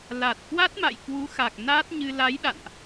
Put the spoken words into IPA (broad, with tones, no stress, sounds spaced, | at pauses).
l a˨˩ t̚ k w a˦˥ t̚ m a̰˧˨ j k w u˨˦ x a˨˩ k̚ n aː˦˥ t̚ ɲ ɨ˧ l a˨˦ j ɗ a̰˧˨ n ʔ